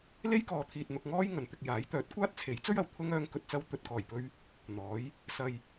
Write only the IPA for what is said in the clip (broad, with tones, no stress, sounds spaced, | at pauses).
l e˥ j k ɔː˨˧ t̪ʰ iː˨ t̚ n̪ ʊ˧ k̚ ŋ ɔː˥ j ŋ ɐ˨ n t̪ ɪ˧ k̚ j aː˨˥ j t̪ œː˨˥ t̚ kʷ aː˥ t̚ t͡sʰ e˨˥ j t͡s ɵ˥ ɥ ɐ˨˩ w t̪ʰ ʊ˥ ŋ œː˧ ŋ k ɵ˨ t̚ t͡s ɐ˧ w t̪ ɵ˨ t̚ k ɔː˨˩ j p ɵ˧ ɥ | n̪ ɔː˨˥ j | s ɐ˧ j